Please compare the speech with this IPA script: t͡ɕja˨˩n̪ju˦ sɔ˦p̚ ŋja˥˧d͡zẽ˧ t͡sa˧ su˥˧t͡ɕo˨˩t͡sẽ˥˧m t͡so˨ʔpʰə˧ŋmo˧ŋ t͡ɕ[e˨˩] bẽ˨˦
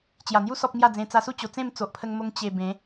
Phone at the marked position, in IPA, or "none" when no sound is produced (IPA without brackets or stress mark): e˨˩